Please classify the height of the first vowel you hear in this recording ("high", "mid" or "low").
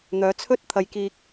mid